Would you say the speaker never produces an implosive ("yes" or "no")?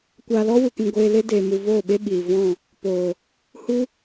no